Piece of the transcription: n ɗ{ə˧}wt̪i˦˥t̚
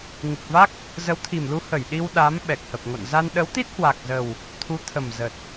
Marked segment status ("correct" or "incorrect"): incorrect